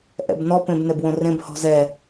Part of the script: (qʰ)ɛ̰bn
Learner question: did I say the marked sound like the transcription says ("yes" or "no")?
no